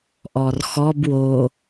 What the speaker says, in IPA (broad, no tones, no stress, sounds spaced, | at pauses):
ʔ ɔ r x ɔ b w o